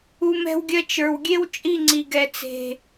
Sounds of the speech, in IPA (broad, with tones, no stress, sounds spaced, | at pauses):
u˧ m ɛ̤˧ w ɡʲ ɜ˦ t͡ʃ ə˞˨ w ɡʲ e˦ w t͡ʃʼ i˦˨ ŋ͡ǀ i˨ ɡ ɛ˨ t͡s e̤˨